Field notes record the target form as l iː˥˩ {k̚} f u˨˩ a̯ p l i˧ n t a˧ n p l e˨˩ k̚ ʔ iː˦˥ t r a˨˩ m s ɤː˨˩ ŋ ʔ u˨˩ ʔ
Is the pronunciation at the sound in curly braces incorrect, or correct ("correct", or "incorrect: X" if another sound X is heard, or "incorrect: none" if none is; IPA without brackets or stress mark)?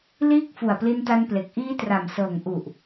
correct